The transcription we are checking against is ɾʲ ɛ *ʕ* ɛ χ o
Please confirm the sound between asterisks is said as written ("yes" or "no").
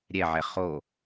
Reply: yes